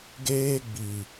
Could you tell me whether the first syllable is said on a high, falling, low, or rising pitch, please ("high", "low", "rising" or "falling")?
high